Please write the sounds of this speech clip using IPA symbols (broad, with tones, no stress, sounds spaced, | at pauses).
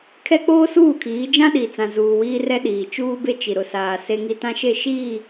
kʰ ɛ˦ k͡p oː˦ s uː˦˨ kʰ iː˨˦ d͡ʒ ã˦ ɗ i˨ t͡s ã˨ z uː˨ w iː˦ r ɛ˦ ɗ iː˨ t͡ʃ uː˦ b e˦ t͡ʃ i˨ ɾ ʊ˨ s aː˨ s e˦ ŋ i˦ t ã˦ ʃ e˦˨ ʃ iː˦˨